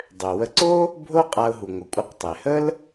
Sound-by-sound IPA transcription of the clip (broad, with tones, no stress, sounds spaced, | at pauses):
dˤ ø˩ w ə˧ ǀ o˥ | bʱ o˥ qʼ a˧ ʊ̯ ɦ u˩ ŋʷ ɪ˩ kʷʼ ə˧ q tˤ e˩ h ə˥ l